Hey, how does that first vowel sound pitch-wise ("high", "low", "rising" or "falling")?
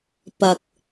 low